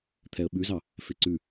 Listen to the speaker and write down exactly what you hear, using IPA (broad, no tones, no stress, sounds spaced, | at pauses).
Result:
t̪ʰ ɛ ə̯ ɓ ʉ z ɑ | f e ǀ ʉ